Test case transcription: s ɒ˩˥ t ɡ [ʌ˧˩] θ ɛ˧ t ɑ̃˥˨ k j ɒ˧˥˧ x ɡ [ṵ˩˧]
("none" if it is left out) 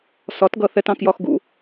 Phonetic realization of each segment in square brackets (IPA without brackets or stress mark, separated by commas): ʌ˧˩, ṵ˩˧